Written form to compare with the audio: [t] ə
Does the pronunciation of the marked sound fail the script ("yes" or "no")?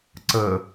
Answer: yes